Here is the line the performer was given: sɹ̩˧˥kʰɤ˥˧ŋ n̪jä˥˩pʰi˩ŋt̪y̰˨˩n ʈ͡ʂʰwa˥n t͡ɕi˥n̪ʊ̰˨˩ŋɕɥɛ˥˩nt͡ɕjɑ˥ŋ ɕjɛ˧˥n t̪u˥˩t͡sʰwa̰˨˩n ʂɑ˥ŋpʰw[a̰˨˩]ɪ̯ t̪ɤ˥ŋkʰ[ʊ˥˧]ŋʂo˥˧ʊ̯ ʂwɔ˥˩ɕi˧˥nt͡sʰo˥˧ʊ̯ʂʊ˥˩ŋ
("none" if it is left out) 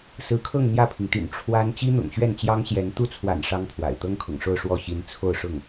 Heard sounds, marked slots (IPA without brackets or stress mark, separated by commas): a̰˨˩, ʊ̰˨˩